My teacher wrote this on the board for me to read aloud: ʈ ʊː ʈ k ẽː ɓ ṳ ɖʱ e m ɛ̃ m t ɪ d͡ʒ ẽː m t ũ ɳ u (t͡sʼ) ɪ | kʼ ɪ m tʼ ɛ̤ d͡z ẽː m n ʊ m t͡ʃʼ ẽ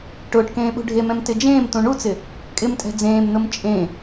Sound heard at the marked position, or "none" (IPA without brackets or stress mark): t͡s